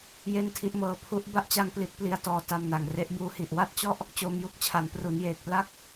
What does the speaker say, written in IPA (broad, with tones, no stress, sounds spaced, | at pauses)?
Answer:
j e˥˩ n tʰ i˦˥ ʔ m ɤː˧ pʰ u˦˥ ʔ b a˥˩ ʔ t͡ɕ a˧ ŋ p l i˥˩ t̚ p l i˦˥ a̯ t ɔː˧ t a˧ m n a˨˩ ŋ r e˦˥ ʔ b uː˧ h i˨˩ ʔ w a˥˩ t̚ t͡ɕ ɔ˥˩ ʔ | t͡ɕ oː˧ m j u˥˩ k̚ t͡ɕʰ a˩˦ n p r u˩˦ n j eː˨˩ k̚ p l a˥˩ k̚